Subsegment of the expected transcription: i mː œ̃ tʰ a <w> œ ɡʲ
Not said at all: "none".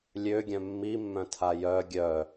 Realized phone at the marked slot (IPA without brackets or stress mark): j